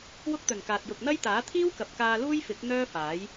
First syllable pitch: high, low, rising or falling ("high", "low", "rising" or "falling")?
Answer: high